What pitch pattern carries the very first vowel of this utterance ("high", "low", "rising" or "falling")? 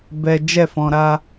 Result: high